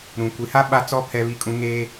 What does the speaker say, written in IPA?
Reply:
ɾ ũ˨ kʷ i˨ h a˦ ɓ a˦ t͡s ɔ˦ pʰ ɛ˦ β i˦ kʼ ũ˦ ŋ eː˦

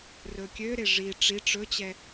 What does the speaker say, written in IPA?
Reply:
r ɵ kʲ ø ɾ e ʐ i ʈ͡ʂ i ʈ͡ʂ ɵ t͡ɕ ɛ

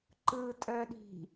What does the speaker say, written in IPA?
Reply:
ǃ ɯ tʼ œ ɗ i̤

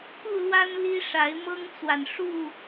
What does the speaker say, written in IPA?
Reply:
k u˥˨ l w a˦ n l i˦ ʂ a˨˦ ɪ̯ m ɤ˦ ŋ t͡s w a˨ n ʂ u˥˨

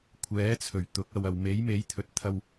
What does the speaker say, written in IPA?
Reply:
kʷʰ ɛː˨˥ t͡sʰ ɵ˨˩ ɥ t̪ ʊ˨˥ k̚ ɐ˨ w ɐ˨ w m e˨˥ j m e˨˥ j t̪ʰ ɵ˨ t̚ t̪ʰ ɐ˧ w

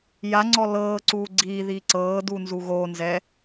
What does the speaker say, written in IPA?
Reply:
j a ŋ͡ǀ ɔ l ɤː ǀ uː ɡ͡ǀ iː ð iː ǀ ɤː d u n z u ɣ oː n z ɛ

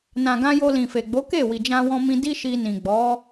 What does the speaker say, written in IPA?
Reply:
n ã˨ ɡ ã˧ j o˧ l ĩ˨ f e˨ ɡ͡b o˨˦ k e˦˨ w i˨ d͡ʒ ã˧ w ɔ̃˧ m ĩ˧ d i˦ ʃ i˧ n ĩ˨ ɡ͡b ɔ˨˦

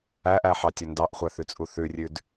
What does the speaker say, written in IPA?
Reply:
æ ʔ æ ħ ɑ tʲ ɵ n d ɑ ʔ χʷ æ θ ʉ t͡sʼ u θ ʉ rʲ ʉ d

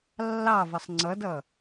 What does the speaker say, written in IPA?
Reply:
lː ɑ v ʌ sˤ ŋ͡ǀ ʌ d ʌ

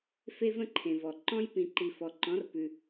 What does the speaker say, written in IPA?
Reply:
f e˥ v ə̃˥ ǃʰ ẽ˩ v ɔ˩ ǃ ɔ̃˥ j p ĩ˩ ǃ i˩ f ɔ˩ ǃ ɔ̃˩˥ r p ʉ˩

